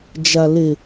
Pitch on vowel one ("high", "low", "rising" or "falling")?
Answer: low